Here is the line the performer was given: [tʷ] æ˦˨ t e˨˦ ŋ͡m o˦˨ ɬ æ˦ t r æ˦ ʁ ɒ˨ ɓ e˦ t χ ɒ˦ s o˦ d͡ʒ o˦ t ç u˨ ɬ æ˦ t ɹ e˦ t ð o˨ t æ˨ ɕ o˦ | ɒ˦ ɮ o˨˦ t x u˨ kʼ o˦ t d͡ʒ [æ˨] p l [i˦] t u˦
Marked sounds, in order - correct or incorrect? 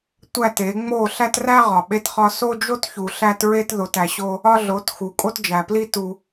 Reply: correct, correct, correct

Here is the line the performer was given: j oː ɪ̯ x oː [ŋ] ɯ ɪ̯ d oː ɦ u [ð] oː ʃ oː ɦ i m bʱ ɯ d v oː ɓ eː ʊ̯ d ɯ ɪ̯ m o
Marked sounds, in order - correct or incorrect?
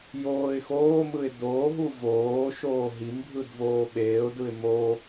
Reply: incorrect: m, incorrect: v

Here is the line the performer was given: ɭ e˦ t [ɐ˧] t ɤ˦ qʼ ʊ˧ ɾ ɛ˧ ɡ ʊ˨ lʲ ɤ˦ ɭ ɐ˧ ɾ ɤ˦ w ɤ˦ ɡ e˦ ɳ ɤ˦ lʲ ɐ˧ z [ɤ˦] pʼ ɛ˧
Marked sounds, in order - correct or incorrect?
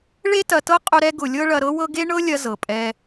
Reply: correct, incorrect: ɤ˨

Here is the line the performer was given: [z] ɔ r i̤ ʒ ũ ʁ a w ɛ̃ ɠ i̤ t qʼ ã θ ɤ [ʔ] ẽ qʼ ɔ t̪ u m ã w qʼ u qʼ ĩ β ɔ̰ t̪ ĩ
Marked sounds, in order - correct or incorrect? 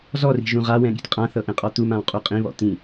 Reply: correct, correct

